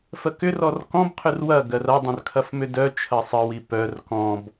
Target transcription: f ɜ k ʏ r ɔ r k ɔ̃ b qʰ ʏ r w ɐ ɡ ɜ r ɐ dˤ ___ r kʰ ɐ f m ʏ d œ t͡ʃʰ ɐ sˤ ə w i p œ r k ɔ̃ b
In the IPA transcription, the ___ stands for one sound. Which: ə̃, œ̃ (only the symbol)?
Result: œ̃